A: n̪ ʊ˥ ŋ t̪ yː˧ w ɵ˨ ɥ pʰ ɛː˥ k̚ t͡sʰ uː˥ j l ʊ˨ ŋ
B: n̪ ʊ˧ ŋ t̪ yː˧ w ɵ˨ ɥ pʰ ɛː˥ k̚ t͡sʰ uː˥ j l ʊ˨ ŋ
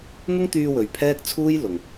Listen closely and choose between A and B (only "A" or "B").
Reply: A